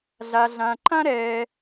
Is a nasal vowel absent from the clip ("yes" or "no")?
no